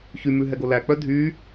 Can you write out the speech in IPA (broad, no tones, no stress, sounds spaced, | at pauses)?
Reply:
ç y m ʉ ɦ ɛ ɡ o l æ k͡p œ dʱ y